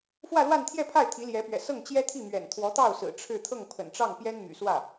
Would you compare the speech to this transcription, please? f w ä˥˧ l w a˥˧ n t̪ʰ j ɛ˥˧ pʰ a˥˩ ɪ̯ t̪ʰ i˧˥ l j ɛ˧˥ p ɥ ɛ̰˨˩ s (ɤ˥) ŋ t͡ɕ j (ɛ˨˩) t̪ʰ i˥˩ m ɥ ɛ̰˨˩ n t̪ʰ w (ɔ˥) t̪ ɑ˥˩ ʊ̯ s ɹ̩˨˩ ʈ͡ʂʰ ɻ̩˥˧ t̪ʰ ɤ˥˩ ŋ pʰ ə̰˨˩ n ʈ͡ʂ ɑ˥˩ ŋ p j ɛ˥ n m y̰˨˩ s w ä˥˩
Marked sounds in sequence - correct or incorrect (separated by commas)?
incorrect, incorrect, incorrect